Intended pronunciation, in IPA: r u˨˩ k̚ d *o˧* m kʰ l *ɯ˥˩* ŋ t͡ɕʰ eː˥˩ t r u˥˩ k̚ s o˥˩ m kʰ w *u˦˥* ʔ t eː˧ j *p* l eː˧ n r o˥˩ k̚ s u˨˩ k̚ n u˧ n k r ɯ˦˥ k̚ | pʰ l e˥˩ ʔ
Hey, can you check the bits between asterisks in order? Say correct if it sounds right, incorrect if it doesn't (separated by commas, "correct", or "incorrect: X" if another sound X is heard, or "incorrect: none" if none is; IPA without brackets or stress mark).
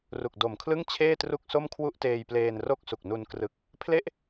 incorrect: o˨˩, correct, incorrect: u˥˩, correct